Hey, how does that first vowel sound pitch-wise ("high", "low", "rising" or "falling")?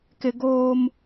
low